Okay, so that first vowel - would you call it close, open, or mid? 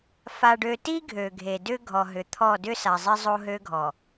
open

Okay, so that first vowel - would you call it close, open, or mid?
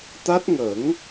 open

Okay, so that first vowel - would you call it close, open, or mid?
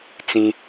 close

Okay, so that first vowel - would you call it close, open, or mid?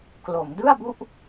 mid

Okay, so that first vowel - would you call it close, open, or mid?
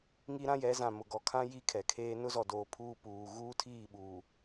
close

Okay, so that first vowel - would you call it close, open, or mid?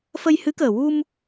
mid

